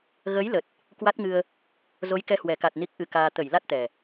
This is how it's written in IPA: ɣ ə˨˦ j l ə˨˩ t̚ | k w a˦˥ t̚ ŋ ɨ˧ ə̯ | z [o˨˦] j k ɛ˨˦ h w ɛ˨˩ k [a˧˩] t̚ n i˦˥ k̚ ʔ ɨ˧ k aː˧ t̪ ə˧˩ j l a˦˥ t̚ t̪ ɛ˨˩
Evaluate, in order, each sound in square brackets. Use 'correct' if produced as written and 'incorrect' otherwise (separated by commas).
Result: correct, incorrect